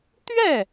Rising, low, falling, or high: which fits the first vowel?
falling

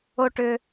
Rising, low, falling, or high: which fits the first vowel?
high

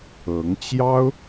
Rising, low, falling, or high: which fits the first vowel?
rising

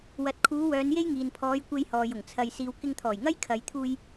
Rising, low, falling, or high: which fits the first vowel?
low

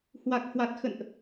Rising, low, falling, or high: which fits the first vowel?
low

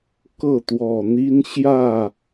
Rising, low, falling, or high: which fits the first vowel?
falling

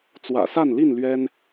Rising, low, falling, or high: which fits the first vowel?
low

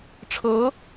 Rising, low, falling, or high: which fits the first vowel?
rising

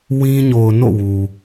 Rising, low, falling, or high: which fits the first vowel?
high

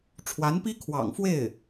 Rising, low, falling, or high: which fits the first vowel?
rising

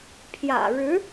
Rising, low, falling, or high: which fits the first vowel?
low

